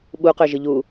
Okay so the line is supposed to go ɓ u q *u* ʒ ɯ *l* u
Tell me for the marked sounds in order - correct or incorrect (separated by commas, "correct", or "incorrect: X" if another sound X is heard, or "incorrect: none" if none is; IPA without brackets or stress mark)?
incorrect: ø, incorrect: ʎ